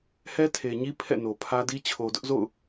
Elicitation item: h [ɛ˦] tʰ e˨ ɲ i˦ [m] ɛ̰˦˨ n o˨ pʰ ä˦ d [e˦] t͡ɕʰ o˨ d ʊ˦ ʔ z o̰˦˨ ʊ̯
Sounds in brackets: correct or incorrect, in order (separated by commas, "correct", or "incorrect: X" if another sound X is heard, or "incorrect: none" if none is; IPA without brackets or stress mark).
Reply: correct, incorrect: pʰ, incorrect: i˦